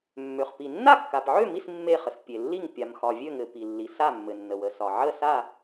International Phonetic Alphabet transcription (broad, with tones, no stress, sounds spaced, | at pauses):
mː ø˩ χ p i˩ nː a˥˨ kː a˩ p ʕ ø˥˨ m i˥˨ s mː e˥˨ χ ə˩ s pʲ e˩ lː i˥˨ ŋ pʲ a˩ m x ɒ˩ vʲ ø˥˨ ŋ ɘ˩ p i˩ lː i˩ s a˥˨ mː ɘ˩ nː ə˩ w ə˩ s ɒ˩ ʕ ə˥˨ s a˥˨